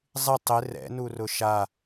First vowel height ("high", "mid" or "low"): high